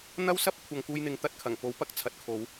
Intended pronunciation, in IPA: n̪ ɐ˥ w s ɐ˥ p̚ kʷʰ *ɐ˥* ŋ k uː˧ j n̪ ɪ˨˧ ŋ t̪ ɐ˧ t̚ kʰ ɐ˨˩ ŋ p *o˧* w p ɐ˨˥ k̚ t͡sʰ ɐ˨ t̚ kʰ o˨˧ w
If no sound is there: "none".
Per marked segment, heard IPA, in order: ɐ˨, o˨˥

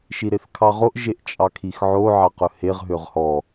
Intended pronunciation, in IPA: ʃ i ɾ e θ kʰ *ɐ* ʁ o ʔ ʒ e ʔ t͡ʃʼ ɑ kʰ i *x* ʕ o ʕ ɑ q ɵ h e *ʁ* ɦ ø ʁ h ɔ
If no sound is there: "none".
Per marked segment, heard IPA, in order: ɑ, x, ʁ

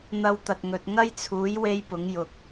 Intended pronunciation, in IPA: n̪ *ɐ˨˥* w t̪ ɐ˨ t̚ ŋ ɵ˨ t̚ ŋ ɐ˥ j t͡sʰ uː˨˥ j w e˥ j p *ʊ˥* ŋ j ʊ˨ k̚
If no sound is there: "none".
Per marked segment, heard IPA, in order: ɐ˧, ʊ˨˥

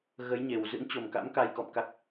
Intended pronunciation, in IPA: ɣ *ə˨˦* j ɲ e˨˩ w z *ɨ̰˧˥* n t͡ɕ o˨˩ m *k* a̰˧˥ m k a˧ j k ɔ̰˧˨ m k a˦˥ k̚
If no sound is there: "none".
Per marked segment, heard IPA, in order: ə˨˦, ɨ̰˧˥, k

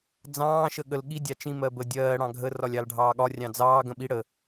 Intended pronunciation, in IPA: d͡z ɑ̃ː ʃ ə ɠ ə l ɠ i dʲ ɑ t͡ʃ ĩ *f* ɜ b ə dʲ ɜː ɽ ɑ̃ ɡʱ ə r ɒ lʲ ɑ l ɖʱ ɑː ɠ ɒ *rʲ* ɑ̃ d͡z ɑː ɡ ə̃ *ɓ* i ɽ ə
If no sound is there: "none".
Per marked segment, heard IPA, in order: m, rʲ, ɓ

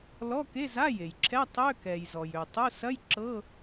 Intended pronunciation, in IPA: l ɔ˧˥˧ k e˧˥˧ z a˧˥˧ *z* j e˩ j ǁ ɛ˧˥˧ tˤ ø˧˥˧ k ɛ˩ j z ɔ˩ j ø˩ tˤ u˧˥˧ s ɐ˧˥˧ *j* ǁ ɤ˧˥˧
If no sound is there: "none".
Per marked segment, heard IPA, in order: none, j

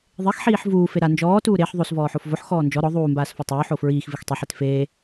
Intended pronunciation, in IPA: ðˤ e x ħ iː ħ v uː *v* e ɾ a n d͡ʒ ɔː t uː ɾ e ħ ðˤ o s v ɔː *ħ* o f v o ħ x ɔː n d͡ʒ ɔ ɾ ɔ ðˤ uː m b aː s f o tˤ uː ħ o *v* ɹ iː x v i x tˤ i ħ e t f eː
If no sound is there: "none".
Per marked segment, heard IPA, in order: f, ħ, f

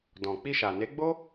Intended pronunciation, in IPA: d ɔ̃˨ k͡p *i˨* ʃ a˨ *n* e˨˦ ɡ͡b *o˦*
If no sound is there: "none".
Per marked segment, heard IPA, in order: i˧, n, o˦

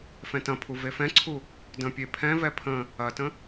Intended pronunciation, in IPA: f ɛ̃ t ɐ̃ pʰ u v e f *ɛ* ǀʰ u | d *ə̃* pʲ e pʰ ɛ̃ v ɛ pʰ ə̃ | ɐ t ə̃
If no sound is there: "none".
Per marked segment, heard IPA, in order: ɛ̃, ə̃

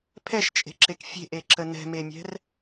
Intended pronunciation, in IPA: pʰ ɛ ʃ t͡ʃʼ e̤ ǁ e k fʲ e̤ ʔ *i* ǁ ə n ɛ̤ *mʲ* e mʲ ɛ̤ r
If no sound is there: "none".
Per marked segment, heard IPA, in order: e, m

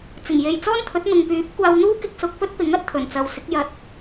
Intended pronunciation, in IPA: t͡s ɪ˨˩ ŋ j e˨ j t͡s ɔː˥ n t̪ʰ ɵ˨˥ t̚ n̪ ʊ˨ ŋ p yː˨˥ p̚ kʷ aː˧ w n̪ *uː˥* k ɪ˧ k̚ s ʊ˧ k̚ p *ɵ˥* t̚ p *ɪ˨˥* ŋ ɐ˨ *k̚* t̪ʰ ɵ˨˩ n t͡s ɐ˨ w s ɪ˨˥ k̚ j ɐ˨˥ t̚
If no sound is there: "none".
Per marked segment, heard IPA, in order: uː˥, ɵ˥, ɪ˨˥, t̚

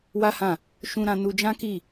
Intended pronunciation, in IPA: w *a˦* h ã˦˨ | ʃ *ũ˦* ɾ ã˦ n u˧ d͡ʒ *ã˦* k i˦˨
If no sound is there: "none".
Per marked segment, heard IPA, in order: a˦, ũ˦, ã˦

